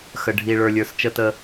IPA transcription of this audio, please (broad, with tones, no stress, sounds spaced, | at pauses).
x ə˨ ɖʱ i˨ ɭ ə˞˨ lʲ ə˞˨ s t͡ʃ ə˦ t ə˦